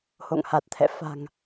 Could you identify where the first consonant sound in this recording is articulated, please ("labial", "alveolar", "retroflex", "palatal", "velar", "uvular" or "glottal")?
glottal